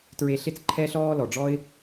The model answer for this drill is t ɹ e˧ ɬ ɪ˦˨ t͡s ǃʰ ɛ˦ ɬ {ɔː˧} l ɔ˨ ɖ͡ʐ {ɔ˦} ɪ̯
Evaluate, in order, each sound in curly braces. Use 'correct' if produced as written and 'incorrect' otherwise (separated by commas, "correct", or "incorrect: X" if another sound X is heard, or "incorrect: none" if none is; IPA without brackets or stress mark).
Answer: incorrect: ɔː˦, correct